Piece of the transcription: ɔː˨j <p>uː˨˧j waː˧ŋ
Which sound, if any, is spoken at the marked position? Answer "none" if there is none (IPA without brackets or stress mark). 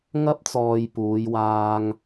p